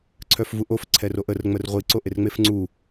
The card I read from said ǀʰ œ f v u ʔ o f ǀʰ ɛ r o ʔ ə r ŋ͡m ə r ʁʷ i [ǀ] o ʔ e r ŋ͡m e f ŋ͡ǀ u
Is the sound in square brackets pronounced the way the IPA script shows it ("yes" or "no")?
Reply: yes